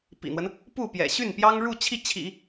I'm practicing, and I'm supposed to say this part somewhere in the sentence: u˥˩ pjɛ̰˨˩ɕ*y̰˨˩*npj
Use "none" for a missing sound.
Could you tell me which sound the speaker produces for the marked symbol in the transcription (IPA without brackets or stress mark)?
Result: y˥˩